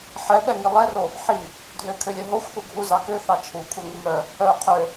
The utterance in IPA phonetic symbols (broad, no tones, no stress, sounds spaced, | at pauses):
ħ ɛ ɓ ɛ ŋ i lˠ ɛ r o | ħ i | dʱ ø kʰ ø lʲ œ ɦ o xʷ θ u ɡʱ u z ɑ k ø θ ɑ t͡ʃʰ u kʷʰ ɛ ŋ i m œ | œ qʰ ø